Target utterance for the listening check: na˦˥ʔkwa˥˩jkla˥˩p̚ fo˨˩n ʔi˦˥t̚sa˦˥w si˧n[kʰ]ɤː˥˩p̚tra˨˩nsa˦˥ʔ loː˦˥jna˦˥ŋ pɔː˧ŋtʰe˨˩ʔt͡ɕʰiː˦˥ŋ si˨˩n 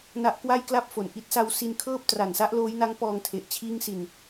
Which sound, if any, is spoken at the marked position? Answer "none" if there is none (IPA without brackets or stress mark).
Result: kʰ